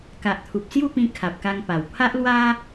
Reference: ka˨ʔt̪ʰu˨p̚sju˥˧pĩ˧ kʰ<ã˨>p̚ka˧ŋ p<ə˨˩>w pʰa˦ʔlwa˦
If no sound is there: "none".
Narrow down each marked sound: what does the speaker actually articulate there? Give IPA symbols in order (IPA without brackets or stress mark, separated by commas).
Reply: a˨, a˨˩